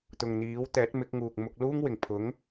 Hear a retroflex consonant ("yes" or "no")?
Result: no